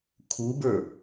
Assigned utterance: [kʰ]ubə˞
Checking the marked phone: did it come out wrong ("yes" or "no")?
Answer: no